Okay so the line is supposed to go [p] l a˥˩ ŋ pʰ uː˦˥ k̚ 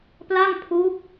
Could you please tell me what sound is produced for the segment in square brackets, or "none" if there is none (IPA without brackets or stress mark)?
p